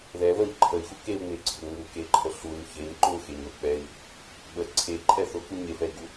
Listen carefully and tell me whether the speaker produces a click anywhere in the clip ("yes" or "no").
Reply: yes